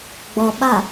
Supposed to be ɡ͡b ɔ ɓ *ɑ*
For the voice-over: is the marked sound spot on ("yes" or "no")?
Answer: no